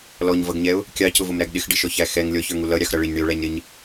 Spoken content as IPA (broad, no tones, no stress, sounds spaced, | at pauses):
l ɔ ɲ v ʌ ɡ ɲ ɛ ʊ̯ | kʲ ɑ c ʊ v ʊ m ɾ æ ɡ ɗ ɪ x ɖ ɪ ʃ ɔ ç æ x ɛ ŋ lʲ ɔ ç ə˞ ŋ u l ʌ ɾʲ ɑ x ɾ ʌ ɭ ɪ ɲ ɳ i ʊ̯ ɭ æ ɲ ɾ ɪ ɲ